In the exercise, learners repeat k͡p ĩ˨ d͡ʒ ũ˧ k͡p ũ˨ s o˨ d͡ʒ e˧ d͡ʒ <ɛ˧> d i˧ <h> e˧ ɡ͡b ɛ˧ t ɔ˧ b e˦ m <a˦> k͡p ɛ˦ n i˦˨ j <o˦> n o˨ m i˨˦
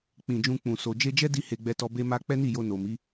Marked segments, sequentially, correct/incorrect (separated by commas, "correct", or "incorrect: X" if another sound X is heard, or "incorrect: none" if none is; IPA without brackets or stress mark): incorrect: ɛ˦, correct, correct, incorrect: o˧